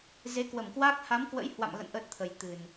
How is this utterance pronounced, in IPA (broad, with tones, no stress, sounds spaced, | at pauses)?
z e˨˦ k w ə˧˩ m k w a˦˥ k̚ h a˨˦ m k w ə̰˧˥ j h w a̰˧˨ m ɣ ə̰˧˨ n ʔ ə˦˥ t̚ t̪ʰ ə˨˩ j t̪ ɨ˨˩ n